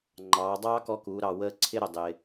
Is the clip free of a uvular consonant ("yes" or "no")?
yes